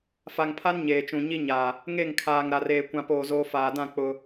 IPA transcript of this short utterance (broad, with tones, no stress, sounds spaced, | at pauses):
f a˨ ŋ pʰ a˦ n ɲ eː˨ t͡ʃ ũ˨ ɲ i˦ ɲ a˨ | ŋ e˦˨ ŋ kʰ aː˨ ŋ ɾ a˨ r eː˨ kʷ ã˨ p oː˨ z oː˨ f aː˨ d ã˦˨ k͡p ʊ˦